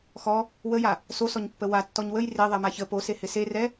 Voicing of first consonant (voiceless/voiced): voiceless